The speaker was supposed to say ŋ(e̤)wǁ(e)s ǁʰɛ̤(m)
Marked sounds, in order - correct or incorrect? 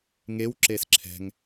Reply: incorrect: e, correct, incorrect: ŋ

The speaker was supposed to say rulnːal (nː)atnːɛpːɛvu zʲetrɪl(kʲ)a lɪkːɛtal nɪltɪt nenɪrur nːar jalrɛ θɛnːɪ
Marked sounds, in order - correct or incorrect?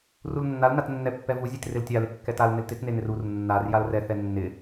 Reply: incorrect: n, incorrect: tʲ

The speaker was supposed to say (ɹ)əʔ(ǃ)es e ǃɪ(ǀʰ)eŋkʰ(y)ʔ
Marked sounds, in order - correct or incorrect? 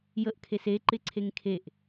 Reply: incorrect: j, incorrect: kʰ, correct, incorrect: e

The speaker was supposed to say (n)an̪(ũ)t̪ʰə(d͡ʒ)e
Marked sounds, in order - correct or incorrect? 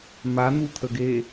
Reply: incorrect: m, incorrect: u, incorrect: ɡ

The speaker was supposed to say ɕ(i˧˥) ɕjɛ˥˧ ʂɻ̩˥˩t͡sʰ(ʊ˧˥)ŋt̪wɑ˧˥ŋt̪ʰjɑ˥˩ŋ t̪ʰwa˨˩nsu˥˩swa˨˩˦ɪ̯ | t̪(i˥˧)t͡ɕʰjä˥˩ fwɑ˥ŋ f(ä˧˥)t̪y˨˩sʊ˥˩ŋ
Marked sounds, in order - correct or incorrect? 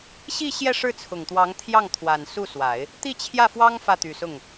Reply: incorrect: i˥˧, incorrect: ʊ˨˩, correct, incorrect: ä˥˩

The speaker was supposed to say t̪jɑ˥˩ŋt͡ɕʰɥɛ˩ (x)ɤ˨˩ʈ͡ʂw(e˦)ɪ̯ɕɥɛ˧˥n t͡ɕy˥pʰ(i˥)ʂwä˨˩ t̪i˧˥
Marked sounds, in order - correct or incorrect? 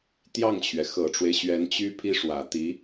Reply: correct, correct, correct

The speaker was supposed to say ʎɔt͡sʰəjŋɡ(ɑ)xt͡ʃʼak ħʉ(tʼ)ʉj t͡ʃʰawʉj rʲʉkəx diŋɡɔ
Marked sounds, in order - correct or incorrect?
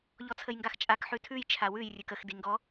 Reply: incorrect: a, incorrect: tʰ

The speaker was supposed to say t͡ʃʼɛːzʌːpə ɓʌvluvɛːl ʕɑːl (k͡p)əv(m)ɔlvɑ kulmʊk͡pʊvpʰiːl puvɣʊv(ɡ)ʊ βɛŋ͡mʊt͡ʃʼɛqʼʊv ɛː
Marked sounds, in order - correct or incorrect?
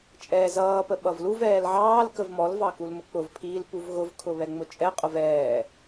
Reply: incorrect: k, correct, incorrect: kʰ

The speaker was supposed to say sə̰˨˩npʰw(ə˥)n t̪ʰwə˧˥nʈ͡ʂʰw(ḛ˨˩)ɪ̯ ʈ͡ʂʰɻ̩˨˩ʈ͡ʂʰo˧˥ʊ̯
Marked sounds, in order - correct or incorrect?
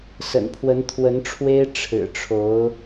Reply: incorrect: ə˧˥, incorrect: e˥

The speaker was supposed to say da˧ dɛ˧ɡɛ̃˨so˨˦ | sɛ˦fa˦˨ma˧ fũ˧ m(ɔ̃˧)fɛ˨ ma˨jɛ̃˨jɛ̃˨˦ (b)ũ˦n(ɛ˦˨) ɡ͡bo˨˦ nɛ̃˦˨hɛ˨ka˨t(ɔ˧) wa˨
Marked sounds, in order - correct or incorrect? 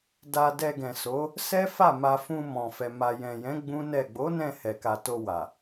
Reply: incorrect: ɔ̃˨, incorrect: ɡ͡b, correct, incorrect: o˧

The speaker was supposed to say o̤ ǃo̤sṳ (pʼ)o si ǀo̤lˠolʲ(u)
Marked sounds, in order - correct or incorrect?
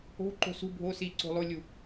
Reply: incorrect: bʱ, correct

